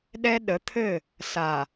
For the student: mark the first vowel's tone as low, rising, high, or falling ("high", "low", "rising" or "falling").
high